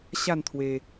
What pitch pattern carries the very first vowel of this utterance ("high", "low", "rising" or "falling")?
falling